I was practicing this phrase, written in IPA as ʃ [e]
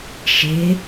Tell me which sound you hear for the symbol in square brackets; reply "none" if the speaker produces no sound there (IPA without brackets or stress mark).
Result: e